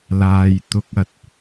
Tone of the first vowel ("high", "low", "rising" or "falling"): low